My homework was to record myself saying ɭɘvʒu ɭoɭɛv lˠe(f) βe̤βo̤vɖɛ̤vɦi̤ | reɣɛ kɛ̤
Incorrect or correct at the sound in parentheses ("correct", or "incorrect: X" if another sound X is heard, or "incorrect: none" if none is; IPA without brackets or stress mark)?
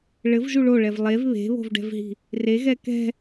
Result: incorrect: v